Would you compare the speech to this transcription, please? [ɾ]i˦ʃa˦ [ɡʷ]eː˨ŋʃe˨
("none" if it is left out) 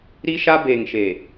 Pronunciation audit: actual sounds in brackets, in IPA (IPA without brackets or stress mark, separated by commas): ɾ, b